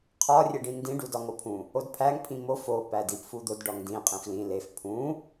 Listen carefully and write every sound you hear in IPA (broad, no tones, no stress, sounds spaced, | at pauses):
qʰ ɒ rʲ e ɖ ĩ n d ĩ ɖ u d ɒ ŋ o pʰ ũ | o d pʰ æ ŋ pʰ ĩ m o f o p æ d i p f u d̪ o d ɖ ɒ ŋ d ĩ qʼ ĩ f l ĩ l e f pʰ ũ